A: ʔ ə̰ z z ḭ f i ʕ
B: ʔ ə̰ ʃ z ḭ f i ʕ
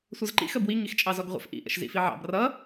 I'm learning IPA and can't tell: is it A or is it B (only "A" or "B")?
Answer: B